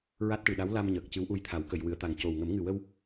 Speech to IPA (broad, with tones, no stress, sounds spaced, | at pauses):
ɹ a˦˥ t̚ ʈ ɨ˨˩ ɗ a˧˥ w l a˧ m ɲ əː˨˩ k̚ c ɨ˧˥ w ʔ u˧ j t̪ʰ a˨˩˦ w k ə˨˩˨ j w ɨ˨˩˨ ə̯ t̪ a˨˩ ŋ c o˨˩ w ŋ ə˨˩˦ m ŋ ɨ˨˩ w ə˧ w